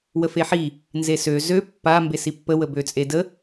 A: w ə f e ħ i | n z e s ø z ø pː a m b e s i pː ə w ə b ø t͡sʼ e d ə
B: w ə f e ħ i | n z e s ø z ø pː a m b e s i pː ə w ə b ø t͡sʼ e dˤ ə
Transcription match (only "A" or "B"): A